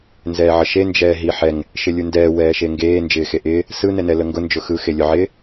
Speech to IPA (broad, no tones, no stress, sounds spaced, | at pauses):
n z ɛː ʕ ə ʃ e n d͡ʒ ɛː ɦ i ħ ɛ ŋ | ʃ ɪ lʲ u n d ɛː w ɛː ʃ e ŋ ɡ eː n d͡ʒ ɪː x e ʔ ɪː | s ɯ n ɛ n ɛ l ə ŋ ɡ ʊ n d͡ʒ ʊ x ɯ x e lʲ ʊ ʕ ɪː